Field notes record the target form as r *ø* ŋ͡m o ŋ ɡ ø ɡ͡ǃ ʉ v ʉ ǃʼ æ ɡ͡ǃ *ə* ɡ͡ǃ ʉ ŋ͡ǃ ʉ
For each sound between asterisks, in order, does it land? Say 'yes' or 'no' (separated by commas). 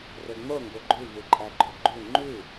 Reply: yes, no